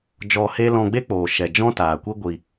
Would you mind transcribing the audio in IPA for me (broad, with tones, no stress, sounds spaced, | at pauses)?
d͡ʒ ɔ˧ h e˦ l ɔ̃˧ ɡ͡b e˦ k͡p oː˨ ʃ ɛ˨ d͡ʒ ɔ̃˦ t aː˨ kʷ i˦ ɡʷ i˧